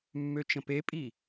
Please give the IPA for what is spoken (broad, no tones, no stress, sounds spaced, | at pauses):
mː ø t͡ʃ ə̃ p e pʼ i